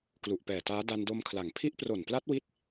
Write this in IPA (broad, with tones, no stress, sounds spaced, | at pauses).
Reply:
k l u˨˩ ʔ p ɛː˨˩ t aː˦˥ d a˧ n d o˧ m kʰ l a˩˦ ŋ pʰ i˦˥ ʔ p r o˨˩ n p l a˦˥ t̚ w i˦˥ t̚